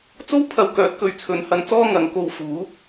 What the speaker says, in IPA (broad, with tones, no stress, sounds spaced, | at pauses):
t͡s o˥ w pʰ ɐ˧ w k œː˨˥ t̚ k ɵ˨˧ ɥ t͡sʰ ɵ˨˥ n h ɐ˧ n t͡s ɔː˥ ŋ ɐ˨˧ ŋ k o˧ w f uː˨˥